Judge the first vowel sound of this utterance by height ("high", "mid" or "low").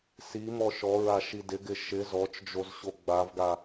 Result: high